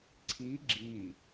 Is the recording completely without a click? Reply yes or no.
no